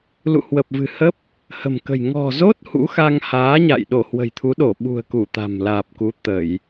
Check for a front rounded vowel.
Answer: absent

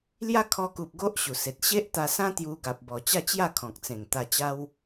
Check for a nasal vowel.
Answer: present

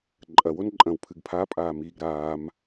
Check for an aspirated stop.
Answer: present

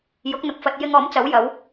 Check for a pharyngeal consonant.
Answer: absent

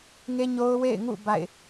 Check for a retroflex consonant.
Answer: absent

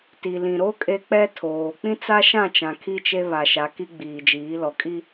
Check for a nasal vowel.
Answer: present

